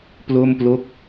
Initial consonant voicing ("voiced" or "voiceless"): voiceless